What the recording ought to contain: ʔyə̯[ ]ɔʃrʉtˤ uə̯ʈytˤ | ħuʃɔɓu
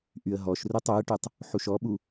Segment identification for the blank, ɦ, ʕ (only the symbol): ɦ